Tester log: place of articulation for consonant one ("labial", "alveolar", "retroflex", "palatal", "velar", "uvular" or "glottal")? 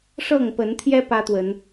retroflex